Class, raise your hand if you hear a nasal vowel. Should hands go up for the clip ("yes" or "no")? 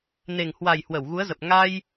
no